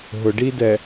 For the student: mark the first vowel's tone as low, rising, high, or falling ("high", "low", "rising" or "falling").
low